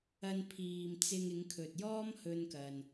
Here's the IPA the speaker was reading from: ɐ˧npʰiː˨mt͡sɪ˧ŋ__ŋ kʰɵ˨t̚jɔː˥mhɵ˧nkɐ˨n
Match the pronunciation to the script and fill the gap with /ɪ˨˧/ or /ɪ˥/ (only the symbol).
ɪ˨˧